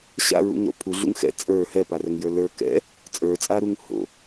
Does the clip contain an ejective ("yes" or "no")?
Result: yes